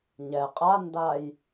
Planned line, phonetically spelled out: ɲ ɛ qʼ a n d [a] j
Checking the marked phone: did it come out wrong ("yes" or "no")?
no